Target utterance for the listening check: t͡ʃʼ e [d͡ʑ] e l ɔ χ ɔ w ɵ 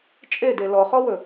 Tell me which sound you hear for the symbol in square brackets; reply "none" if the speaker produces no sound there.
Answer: d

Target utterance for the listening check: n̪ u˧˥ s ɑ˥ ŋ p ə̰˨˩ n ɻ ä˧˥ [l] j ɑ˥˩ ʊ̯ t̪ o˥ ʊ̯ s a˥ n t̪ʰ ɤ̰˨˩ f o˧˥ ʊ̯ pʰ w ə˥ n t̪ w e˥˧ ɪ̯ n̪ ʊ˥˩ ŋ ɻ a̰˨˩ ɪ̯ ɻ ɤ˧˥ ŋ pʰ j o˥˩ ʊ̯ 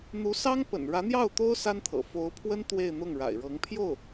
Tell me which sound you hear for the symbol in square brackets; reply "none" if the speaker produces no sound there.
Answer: n̪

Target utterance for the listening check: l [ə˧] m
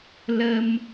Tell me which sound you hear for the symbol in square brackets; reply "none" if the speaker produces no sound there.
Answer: ə˧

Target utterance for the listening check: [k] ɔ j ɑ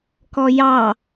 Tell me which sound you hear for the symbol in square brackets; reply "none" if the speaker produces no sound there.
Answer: k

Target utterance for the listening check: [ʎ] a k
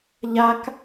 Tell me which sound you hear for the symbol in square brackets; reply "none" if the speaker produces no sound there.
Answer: ʎ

